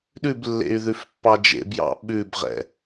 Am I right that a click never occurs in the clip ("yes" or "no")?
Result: yes